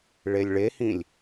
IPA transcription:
ɭ e lʲ ɭ e h ĩ lʲ

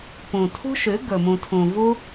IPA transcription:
p ũ˨ tʰ ṳ˦ ʃ ʉ˨˦ ɡ ɵ˨ m ũ˨ tʰ ũ˨ v u˦

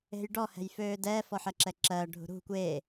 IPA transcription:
e̤ j ɖ ɔ h ɛ̤ j f øː d ɛː f ɔ ħ ɜ ǁ ɛ ǁ ɜː ɖʱ ṳ ɾ ṳ kʷ eː

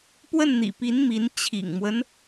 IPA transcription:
p w ə˥˩ n n̪ ḭ˨˩ p i˧˥ n m i˧˥ n t͡ɕʰ ḭ˨˩ ŋ m w ə˦ n

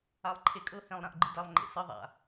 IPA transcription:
a lˠ ǃʰ e kʼ ɤ h ẽ lˠ ɾ ã ʔ ɡ͡ǃ ɯ d a lˠ ŋ͡ǃ ḛ s ɯ ðˤ a̰

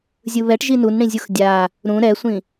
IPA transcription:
zʲ ɯ β ɛ ʈ ʒ i n u n ɽ ĩ zʲ u x dʲ a | ɾ ũ ɾ ɛ sʷ ĩ

